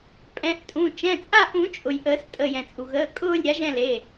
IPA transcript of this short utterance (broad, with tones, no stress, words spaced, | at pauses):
pʼɛ̃˩˧˩ʔtʼũ˩˧˩ t͡ʃɛ̃˩˧˩t͡sʼa˦˨ ʔũ˨˩˦t͡ʃʼʊ˩j ʔəː˨˩˦stʼə˩˧˩ jɛ̃˩t͡sʼu˩ɣəː˩˧˩ kʼʊː˦˨lʲ ɾʲa˩˥ʒɛ̃˦˨le˩˧˩